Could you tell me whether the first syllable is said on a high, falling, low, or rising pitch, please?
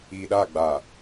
low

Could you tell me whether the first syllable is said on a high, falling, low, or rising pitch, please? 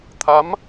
rising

